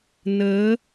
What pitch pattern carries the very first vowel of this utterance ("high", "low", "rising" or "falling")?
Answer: rising